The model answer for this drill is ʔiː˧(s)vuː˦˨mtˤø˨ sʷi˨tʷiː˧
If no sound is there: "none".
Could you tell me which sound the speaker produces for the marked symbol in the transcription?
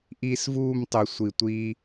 s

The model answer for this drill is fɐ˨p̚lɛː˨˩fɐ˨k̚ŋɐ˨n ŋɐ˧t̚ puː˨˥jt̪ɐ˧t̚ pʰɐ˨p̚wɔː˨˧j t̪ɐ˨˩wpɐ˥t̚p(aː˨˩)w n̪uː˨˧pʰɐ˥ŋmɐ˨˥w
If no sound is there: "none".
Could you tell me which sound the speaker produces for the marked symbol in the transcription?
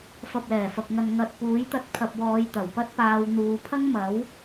aː˧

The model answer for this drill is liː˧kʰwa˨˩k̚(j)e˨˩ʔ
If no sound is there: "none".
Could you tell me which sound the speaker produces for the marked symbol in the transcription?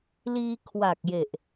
j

